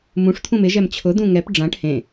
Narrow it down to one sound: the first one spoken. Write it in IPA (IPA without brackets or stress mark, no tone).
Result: m